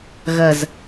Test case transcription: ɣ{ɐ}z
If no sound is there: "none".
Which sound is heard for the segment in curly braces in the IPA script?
ɐ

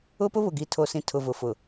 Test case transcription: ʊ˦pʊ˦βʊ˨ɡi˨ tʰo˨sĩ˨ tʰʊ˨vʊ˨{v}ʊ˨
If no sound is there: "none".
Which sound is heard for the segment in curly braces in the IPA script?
f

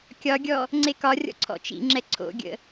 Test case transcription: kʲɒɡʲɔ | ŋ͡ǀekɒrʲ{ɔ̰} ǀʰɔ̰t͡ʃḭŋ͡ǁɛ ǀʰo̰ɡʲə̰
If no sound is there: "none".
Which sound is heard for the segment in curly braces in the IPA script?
ɔ̰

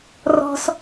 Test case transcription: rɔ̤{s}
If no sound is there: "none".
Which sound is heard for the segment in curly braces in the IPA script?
s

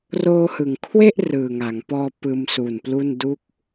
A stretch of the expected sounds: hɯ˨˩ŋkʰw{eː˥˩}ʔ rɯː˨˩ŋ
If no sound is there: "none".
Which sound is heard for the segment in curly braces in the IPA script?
e˥˩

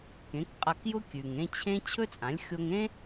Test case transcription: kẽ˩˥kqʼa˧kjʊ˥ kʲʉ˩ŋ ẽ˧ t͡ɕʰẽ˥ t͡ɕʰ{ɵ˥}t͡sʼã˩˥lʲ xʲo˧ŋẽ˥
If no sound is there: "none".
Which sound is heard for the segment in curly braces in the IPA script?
ɵ˥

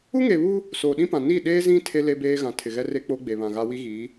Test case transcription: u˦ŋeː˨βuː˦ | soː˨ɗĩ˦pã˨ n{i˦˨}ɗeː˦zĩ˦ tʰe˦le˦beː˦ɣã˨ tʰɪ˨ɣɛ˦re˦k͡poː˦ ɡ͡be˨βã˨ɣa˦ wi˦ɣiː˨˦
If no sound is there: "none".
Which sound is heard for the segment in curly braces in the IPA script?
i˦˨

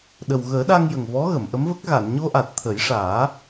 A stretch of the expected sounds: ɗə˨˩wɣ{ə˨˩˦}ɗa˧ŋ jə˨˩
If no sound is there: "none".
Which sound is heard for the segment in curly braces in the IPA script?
əː˨˩˦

